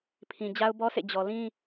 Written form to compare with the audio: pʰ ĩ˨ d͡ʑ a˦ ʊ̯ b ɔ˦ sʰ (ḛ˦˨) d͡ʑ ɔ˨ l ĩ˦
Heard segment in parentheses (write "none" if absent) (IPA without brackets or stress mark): ḛ˦˨